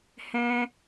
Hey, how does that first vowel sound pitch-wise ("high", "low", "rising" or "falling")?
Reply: high